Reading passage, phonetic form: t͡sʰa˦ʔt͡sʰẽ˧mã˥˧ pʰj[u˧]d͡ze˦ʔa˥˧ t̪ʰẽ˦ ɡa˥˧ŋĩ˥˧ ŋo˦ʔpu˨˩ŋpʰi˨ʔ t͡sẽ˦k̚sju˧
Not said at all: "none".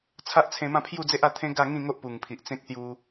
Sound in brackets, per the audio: u˥˧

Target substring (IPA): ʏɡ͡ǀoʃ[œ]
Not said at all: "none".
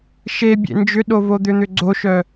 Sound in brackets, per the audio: œ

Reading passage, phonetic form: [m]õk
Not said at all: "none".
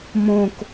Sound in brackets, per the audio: m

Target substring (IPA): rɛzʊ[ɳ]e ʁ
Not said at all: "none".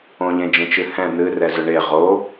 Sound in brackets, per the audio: ɳ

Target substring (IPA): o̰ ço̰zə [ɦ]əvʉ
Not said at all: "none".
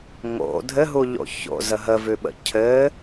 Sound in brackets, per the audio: ɦ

